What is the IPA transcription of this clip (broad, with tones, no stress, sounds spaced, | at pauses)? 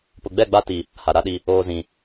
p ʊ˨ ɡ͡b ɛ˦˨ ɡ͡b a˦ t i˦ | h a˨ ɾ a˦ ɗ i˦ | oː˦ z ĩ˦